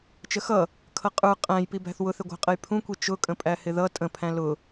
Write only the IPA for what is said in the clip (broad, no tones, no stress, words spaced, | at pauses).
t͡ʃəxʌ | kʰʌqʼə˞ qʼæ̃jpibæ̤θ wʊθɪɡʷæ̤qʼəj pʰũkʷi t͡ʃʊkʼə̃ pʼæhɪðʌ tʼə̃pʰæ̃ lʊ